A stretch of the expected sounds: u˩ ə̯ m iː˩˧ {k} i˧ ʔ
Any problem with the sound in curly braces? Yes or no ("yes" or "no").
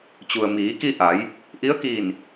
no